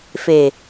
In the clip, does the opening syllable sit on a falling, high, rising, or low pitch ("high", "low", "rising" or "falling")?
low